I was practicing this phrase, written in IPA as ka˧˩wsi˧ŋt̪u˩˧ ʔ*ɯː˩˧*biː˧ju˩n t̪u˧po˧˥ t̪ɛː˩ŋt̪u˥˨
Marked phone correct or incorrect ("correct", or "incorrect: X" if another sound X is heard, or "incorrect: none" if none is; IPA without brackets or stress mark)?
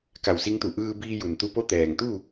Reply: incorrect: ɯː˧